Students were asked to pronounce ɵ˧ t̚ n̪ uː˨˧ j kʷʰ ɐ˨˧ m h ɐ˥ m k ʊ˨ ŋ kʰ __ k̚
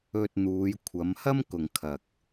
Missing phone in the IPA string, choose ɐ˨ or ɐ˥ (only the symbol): ɐ˨